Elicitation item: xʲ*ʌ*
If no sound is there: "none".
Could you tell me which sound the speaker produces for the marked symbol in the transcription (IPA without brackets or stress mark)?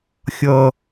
ʌ